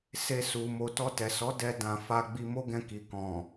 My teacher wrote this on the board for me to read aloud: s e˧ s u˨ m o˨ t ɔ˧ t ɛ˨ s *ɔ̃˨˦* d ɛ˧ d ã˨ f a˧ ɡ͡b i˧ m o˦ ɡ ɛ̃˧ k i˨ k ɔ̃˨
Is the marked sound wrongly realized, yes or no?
yes